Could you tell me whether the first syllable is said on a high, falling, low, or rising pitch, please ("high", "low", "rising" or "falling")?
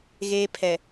high